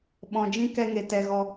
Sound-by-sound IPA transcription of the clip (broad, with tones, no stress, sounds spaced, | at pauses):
ɓ ɔ̃˧ d͡ʒ ĩ˦ k ɛ˦ ŋ e˧ t ɛ˧ ɣ ɔ˧